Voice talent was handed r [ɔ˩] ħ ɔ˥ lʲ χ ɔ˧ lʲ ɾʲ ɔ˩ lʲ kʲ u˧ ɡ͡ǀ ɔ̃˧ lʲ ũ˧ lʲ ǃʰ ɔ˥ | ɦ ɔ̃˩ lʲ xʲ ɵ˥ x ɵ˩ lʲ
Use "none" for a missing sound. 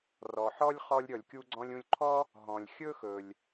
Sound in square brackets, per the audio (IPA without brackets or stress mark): ɔ˩